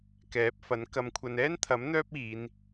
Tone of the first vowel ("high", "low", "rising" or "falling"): rising